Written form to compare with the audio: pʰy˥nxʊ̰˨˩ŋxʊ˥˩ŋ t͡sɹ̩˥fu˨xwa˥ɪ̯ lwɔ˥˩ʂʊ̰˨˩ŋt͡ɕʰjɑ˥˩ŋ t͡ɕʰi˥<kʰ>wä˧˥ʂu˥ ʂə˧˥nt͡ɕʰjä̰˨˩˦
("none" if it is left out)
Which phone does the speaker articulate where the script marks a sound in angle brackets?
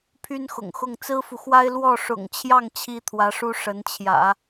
t̪ʰ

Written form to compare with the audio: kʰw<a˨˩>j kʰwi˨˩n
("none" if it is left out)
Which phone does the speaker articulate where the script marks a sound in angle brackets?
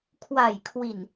a˨˩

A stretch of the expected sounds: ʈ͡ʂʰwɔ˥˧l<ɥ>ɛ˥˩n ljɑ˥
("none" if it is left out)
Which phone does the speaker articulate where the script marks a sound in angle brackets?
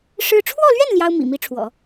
ɥ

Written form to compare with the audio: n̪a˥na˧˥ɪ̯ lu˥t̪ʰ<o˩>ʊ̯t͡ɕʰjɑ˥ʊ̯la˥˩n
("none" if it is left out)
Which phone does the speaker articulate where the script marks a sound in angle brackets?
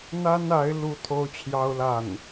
o˥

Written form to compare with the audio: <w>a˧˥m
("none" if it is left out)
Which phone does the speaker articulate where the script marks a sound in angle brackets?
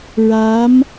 ɹ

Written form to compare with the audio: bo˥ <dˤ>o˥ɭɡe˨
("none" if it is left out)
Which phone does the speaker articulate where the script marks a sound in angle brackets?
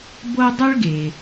dˤ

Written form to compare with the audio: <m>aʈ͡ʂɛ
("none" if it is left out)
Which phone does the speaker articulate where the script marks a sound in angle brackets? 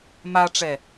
m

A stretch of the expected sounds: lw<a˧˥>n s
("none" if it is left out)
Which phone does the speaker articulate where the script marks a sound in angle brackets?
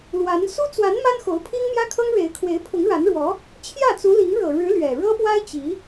a˧˥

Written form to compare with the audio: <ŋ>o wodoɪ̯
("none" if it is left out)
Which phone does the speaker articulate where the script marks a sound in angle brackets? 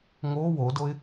ŋ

